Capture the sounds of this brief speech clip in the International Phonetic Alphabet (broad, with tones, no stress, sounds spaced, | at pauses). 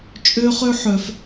t͡ʃʼ ø˧ χ ø˧ ħ œ˩ f